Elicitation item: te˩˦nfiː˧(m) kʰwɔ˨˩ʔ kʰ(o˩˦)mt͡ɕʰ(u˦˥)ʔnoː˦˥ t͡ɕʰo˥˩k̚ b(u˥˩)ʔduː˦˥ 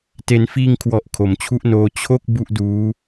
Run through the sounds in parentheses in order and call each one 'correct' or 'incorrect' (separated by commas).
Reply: incorrect, correct, incorrect, correct